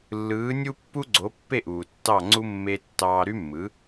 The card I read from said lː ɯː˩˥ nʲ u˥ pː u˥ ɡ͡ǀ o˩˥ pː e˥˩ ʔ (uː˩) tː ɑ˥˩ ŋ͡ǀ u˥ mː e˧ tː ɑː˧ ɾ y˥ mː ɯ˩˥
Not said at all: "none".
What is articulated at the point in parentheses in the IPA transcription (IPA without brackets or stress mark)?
uː˩